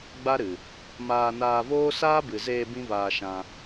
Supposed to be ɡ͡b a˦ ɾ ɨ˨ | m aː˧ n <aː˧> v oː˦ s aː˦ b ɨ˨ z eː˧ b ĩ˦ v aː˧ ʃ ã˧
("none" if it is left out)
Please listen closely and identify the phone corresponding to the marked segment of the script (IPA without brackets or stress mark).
aː˧